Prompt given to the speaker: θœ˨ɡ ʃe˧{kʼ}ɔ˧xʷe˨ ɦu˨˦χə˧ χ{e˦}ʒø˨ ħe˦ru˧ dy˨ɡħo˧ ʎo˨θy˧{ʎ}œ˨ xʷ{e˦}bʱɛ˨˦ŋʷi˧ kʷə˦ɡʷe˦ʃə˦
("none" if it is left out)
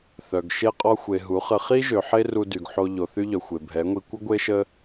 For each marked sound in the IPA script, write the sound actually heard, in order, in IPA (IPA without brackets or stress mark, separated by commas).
qʼ, i˦, ʎ, e˨